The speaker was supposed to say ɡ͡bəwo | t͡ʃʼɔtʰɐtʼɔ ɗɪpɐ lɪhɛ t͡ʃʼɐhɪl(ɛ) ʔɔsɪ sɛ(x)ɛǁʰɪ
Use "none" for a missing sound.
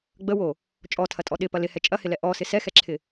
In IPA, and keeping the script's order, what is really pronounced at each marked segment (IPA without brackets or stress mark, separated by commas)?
ɛ, x